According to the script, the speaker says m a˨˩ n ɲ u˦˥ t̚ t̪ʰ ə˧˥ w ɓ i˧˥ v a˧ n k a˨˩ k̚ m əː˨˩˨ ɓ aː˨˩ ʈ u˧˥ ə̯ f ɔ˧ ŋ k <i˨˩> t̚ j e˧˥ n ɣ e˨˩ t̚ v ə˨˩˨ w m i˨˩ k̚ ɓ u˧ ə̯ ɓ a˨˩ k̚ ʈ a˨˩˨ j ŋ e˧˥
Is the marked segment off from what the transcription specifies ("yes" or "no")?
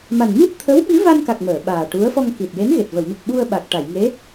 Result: no